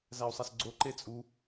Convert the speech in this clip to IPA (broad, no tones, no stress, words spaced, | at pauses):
zæu̯sˤæsɡ͡ǀo ǃet͡sʼu